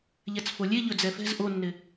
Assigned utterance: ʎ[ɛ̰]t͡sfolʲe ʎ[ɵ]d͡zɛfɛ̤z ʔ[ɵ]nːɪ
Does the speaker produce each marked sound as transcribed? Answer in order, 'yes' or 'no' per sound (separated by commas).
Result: no, yes, no